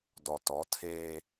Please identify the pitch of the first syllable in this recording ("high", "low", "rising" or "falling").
low